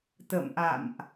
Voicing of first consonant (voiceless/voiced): voiceless